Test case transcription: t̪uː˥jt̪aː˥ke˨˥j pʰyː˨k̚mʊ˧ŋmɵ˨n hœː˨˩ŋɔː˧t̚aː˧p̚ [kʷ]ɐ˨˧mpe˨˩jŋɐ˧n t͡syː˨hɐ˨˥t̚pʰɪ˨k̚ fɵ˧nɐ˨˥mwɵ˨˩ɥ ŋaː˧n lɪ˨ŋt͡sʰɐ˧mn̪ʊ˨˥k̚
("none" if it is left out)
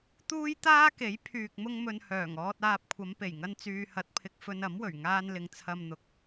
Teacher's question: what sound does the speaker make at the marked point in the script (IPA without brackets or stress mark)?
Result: kʷʰ